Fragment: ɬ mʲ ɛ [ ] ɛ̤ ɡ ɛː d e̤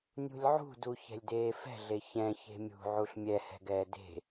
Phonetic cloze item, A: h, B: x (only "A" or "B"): A